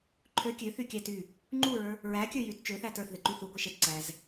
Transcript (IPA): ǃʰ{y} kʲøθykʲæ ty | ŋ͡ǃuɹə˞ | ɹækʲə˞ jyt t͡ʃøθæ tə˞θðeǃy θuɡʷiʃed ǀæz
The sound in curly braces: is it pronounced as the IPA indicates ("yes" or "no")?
no